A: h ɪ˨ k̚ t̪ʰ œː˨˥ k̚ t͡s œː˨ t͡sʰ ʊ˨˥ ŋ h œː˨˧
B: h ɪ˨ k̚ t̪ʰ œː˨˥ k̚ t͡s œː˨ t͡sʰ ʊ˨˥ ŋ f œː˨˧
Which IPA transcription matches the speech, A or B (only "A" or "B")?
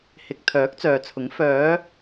B